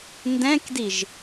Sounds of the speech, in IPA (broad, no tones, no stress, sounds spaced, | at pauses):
n d ɛ̃ k d i ʒ